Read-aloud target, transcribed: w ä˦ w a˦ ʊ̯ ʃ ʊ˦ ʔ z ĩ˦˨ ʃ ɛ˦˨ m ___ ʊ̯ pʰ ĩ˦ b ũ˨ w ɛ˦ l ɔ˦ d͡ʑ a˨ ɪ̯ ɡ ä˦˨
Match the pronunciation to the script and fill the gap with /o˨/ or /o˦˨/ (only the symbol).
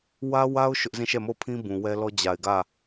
o˦˨